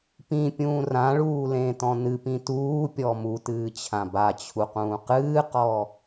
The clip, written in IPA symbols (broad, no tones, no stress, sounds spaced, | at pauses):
p ĩ pʲ ũː r ã ɭ uː l ẽ t ɔ̃ n ɨ p ĩ t uː pʲ ɔ m u t ɨː t͡ɕʰ ã b a t͡ɕʰ u q ũː q ɨː q ɔ